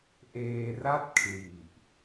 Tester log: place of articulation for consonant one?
glottal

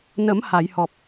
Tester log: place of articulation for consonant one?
alveolar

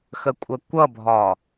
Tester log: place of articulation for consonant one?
velar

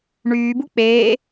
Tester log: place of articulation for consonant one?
retroflex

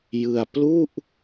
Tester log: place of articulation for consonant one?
palatal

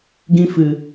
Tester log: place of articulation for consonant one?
velar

